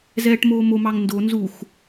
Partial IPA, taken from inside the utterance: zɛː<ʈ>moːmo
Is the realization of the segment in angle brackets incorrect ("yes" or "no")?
no